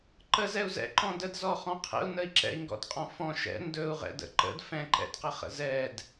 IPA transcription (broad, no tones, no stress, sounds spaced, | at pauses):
ǃ ə z ɛ u̯ z ɛ̰ ǃ ɔ̃ d ə d z ɔ χ ɔ̃ qʰ ɛ̰ u̯ n ə i̯ ǁ ɛ̰ i̯ ŋ ɡ ɔ̰ d qʼ ɔ̃ f ɔ̃ ʃ ɛ̰ n d ɵ u̯ ʁ ɛ̰ d ə̰ ǃ ə̰ d f ɛ̃ ǃ ɛ̰ d q ə χ ə̰ z ɛ d